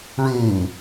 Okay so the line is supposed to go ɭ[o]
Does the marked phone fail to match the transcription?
yes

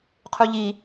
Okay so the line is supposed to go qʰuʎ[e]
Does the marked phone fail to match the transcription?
yes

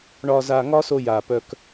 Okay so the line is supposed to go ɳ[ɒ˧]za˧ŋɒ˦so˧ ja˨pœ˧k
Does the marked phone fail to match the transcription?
no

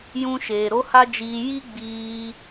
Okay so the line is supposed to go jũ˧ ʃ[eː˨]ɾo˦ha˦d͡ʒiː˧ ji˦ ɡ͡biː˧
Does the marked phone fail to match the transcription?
no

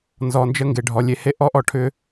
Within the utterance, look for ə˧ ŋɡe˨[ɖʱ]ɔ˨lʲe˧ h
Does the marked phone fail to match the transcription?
no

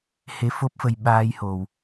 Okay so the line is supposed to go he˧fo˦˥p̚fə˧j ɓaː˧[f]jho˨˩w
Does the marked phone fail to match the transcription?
yes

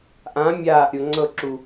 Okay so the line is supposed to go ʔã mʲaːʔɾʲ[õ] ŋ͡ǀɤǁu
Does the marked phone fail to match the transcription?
yes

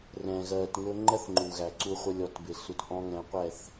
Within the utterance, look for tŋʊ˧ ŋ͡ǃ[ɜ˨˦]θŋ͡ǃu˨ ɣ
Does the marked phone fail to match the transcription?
yes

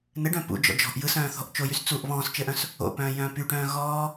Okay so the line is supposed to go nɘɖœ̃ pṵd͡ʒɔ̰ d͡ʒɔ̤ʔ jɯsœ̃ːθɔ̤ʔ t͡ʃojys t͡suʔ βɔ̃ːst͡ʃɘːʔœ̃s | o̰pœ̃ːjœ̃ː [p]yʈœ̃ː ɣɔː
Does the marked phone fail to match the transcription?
no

